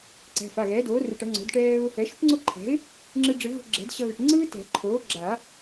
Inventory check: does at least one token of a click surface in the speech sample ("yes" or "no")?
yes